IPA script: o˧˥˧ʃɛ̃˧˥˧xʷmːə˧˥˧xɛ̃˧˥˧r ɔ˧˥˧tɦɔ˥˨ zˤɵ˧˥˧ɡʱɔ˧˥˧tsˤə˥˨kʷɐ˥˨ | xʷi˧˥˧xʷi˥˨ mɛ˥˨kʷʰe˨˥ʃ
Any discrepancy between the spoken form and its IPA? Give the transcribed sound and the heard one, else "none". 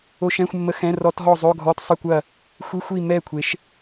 none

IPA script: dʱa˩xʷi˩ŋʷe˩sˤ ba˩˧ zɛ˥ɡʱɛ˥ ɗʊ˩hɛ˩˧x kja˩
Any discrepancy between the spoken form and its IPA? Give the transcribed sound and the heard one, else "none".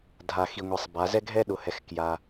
xʷ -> x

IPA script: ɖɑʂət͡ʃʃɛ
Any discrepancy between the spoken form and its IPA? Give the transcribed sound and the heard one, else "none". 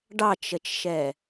ʂ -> t͡ʃ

